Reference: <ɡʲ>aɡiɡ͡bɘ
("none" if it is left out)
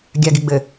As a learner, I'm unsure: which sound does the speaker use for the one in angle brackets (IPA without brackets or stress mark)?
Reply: ɡʲ